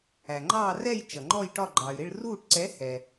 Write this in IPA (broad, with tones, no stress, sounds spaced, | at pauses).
æ˩ ŋ͡ǃ ɑː˦˨ r ɛ˦˨ j t͡ʃ ʌ˩ ŋ͡ǃ ɔ˦˨ j ʈ ɒ˦˨ ɡ͡ǃ ɑ˩ y̯ ɾ ɪ˦˨ ɭ r uː˦˨ ʈ ǀ ɛ˨˥ h ɛ˩